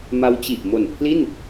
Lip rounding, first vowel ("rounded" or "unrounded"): unrounded